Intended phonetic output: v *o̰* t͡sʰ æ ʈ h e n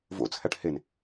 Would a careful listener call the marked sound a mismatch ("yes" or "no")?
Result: no